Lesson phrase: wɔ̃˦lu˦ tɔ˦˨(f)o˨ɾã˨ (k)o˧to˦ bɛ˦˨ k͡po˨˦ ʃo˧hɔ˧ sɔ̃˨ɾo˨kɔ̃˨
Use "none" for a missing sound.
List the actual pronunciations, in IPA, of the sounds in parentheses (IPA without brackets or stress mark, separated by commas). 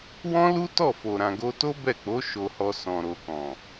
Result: f, ɡ